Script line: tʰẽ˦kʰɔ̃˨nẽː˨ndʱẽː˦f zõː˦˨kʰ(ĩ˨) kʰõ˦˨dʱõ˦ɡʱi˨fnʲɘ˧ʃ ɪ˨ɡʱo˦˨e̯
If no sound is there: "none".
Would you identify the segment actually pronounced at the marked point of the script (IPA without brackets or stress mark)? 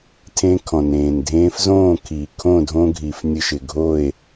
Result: i˨